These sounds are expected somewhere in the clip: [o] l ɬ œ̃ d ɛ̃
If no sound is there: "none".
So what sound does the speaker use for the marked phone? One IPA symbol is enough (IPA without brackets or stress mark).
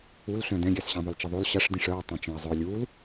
u